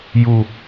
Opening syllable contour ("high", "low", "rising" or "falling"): low